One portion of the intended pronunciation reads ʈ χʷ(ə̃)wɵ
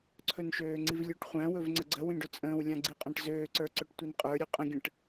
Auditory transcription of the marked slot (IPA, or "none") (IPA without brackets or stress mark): æ̃